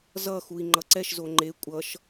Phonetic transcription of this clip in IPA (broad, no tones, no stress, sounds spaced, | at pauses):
z ʌ x u i̯ ŋ͡ǃ ʌ ǀ ɛ ʃ z o ŋ͡ǃ e kʷʼ ʌ ʃ